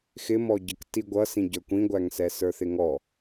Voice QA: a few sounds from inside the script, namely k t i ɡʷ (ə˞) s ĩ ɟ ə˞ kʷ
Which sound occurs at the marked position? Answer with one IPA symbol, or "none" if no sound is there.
ʌ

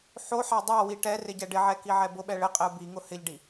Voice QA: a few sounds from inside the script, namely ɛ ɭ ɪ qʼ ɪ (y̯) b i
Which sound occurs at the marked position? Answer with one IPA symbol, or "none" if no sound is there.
u̯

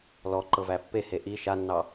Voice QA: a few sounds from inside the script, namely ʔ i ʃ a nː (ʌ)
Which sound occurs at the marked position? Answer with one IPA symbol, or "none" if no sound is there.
ɑ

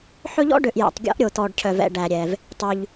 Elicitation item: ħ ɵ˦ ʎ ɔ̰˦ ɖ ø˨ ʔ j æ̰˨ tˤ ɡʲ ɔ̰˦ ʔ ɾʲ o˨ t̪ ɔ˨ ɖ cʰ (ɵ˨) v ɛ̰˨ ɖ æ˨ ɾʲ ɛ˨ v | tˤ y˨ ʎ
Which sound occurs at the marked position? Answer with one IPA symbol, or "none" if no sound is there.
œ˨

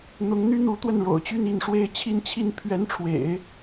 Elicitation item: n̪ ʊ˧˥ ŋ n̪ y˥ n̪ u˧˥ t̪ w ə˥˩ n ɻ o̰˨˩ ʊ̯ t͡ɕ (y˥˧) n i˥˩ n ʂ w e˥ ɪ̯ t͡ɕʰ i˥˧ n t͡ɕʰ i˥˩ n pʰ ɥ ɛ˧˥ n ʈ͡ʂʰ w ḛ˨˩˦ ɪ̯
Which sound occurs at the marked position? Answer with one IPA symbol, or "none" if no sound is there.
y˥˧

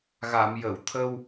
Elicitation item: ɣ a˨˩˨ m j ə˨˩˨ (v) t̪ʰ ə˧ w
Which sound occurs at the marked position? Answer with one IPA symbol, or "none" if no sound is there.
w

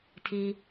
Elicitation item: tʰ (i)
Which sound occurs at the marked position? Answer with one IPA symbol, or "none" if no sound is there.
i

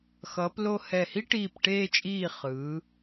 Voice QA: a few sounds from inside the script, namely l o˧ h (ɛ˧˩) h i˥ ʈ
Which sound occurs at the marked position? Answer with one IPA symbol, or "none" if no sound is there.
ɛ˧˩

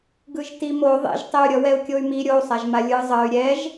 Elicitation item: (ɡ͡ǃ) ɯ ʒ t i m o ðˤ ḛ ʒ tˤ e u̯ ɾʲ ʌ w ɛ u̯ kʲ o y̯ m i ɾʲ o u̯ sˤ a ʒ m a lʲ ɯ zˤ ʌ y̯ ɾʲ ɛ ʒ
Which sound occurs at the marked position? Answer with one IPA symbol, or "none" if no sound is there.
ɡ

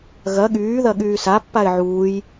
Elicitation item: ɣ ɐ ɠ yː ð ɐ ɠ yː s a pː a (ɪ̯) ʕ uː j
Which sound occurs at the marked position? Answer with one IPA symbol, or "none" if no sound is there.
ɪ̯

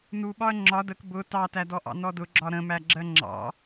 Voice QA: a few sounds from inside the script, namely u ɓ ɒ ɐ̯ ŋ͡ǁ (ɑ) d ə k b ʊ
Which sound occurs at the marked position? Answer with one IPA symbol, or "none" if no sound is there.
ɒ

